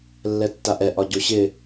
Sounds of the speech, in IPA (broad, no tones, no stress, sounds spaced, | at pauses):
lː ɛ tː a ʔ ɛ ʔ ɒ ɟ o ɕ ɪ